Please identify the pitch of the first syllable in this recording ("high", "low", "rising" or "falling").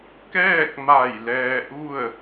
falling